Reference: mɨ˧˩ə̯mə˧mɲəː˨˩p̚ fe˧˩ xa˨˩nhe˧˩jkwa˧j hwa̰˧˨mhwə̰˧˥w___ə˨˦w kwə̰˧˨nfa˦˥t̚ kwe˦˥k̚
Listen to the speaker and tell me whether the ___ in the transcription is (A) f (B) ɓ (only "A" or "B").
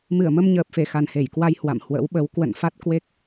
B